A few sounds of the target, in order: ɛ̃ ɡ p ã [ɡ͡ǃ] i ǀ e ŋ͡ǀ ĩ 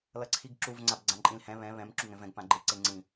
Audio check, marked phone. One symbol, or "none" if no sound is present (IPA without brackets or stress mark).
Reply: ɡ͡ǃ